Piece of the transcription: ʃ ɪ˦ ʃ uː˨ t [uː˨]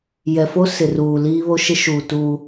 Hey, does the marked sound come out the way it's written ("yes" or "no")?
no